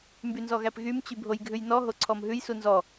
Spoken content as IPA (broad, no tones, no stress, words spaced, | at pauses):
mbynzɔɣæpɣym t͡ɕybʱojɡʱʉjnɔ ɦoǀʰɔmɦʉj sunzɔ